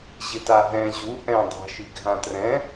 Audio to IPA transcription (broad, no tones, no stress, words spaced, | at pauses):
ʑɪtaɦɛ̃ ʑu ʔɛ̃ dˤa̤ʃi ɡʱãtrɛ̃